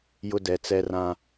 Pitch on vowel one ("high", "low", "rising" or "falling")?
high